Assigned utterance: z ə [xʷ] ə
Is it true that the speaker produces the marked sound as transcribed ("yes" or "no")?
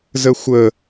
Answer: yes